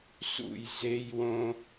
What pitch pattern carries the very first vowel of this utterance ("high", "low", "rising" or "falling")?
falling